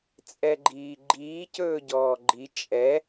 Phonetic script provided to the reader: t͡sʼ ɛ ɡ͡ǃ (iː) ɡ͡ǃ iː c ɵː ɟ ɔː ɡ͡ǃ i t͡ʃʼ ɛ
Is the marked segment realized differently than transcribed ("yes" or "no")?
no